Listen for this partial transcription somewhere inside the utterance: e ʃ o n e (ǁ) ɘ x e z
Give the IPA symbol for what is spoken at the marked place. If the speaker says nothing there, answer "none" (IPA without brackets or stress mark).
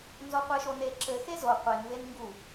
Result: ǁ